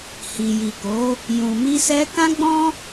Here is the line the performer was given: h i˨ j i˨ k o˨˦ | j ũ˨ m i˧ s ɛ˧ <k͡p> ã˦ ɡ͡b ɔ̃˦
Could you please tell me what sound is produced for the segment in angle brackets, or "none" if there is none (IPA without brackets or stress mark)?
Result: k